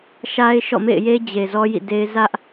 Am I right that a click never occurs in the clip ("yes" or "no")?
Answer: yes